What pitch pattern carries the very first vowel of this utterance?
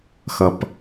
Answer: low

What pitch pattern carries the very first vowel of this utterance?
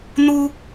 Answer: high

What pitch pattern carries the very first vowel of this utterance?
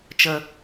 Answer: low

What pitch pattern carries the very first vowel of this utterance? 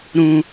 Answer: high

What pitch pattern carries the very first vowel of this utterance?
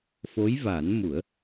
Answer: rising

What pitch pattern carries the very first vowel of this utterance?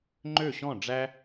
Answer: falling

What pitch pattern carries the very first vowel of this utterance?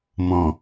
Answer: low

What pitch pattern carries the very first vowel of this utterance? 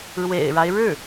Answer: low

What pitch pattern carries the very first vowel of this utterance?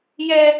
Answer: high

